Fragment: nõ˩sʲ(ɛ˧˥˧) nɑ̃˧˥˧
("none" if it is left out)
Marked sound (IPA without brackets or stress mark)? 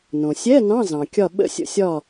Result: ɛ˧˥˧